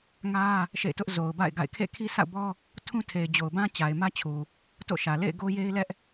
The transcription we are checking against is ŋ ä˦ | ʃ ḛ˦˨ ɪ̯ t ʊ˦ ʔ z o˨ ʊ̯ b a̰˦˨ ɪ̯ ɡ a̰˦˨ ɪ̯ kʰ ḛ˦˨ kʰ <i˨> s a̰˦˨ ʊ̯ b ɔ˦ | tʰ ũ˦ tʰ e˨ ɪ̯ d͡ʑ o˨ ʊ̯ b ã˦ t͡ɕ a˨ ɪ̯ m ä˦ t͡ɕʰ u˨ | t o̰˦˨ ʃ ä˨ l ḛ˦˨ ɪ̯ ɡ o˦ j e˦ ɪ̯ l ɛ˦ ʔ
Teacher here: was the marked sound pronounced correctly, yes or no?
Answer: no